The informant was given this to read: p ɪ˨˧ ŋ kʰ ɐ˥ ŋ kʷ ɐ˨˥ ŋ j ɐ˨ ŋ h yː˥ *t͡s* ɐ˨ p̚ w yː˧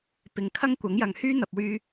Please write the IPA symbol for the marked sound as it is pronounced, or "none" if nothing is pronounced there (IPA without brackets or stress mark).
n̪